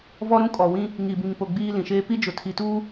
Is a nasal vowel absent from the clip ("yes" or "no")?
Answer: no